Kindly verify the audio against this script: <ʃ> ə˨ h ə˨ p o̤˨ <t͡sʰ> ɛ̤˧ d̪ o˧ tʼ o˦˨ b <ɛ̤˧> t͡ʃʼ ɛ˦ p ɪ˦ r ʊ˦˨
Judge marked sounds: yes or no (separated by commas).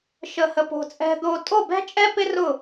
yes, no, no